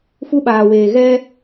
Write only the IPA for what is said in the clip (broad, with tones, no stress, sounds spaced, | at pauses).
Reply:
f u˦ ɓ aː˨ w eː˨ ɣ ɛ˦